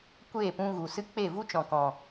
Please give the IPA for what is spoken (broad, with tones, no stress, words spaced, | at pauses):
kʷeː˦˨pũ˧ ɣu˨sɨ˦ k͡pe˦˨vu˦t͡ʃɔ̃˨ kɔ̃˨